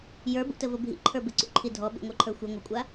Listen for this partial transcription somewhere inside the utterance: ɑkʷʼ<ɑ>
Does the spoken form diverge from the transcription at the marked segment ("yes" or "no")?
yes